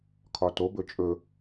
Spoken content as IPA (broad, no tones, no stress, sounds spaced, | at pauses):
kʰ ɒ t o b ɵ t͡ʃʼ ɵ